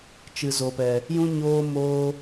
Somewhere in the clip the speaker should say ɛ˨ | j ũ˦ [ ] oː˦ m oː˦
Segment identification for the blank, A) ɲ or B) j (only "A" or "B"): A